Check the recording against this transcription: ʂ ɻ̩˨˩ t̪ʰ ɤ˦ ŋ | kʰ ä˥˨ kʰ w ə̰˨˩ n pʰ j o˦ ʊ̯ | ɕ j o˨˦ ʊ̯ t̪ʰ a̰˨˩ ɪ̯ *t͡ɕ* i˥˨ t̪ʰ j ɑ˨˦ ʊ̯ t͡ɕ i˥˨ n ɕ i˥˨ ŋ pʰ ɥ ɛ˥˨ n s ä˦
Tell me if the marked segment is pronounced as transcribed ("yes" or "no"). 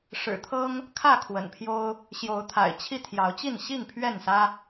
no